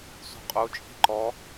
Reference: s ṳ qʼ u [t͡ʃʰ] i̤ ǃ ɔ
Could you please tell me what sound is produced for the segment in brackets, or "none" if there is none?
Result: t͡ʃʼ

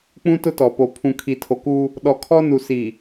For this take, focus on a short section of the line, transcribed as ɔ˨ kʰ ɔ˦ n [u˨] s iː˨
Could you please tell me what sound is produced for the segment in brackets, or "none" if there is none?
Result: u˨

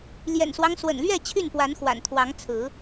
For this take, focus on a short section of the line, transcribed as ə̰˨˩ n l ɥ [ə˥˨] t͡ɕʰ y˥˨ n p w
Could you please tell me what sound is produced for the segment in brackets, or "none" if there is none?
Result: ɛ˥˨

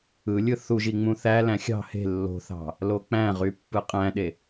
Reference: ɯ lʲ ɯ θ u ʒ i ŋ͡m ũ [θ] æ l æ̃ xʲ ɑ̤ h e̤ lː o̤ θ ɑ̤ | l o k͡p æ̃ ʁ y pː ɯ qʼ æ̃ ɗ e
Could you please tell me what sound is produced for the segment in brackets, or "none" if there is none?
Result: θ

